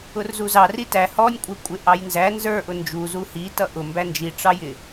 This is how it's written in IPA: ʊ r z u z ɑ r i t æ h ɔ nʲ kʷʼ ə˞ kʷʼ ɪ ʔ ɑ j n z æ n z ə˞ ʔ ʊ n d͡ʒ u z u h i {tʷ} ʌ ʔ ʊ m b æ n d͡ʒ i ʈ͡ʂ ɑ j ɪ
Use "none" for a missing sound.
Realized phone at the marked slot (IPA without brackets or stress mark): t